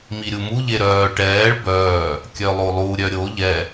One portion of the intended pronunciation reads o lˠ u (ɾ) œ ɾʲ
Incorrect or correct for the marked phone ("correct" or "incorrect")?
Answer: incorrect